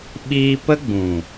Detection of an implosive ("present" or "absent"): present